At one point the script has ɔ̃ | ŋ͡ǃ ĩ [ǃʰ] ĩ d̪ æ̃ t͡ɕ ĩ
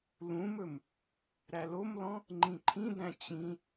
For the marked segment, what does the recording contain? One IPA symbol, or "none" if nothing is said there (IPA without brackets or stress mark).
ǃʰ